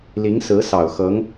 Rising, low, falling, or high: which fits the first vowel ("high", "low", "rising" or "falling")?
rising